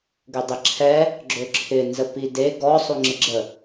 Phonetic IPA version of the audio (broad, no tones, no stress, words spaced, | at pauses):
ɡødˤɪǁʰɛ | ɡ͡ǁøǁʰɪ nzəpide ɡɔ sˤuŋ͡ǁɪɡ͡ǁə